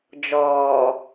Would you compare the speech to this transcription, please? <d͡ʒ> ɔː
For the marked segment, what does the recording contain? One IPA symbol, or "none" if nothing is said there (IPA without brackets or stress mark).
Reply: d͡ʒ